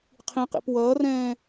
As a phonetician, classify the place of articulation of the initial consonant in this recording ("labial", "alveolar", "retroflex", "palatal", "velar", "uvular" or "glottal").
uvular